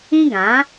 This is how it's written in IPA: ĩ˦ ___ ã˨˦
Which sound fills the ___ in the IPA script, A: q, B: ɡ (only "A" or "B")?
B